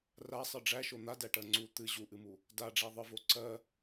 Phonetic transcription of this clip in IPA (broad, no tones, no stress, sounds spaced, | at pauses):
r a sˤ ɨ ɖ͡ʐ æ ʃ o n̪ a d æ ʈ ɜ ŋ͡ǀ u t̪ ɨ ʑ u ʔ ɨ m u | d a ɖ͡ʐ æ ðˤ ɨ v o ǀ ɜ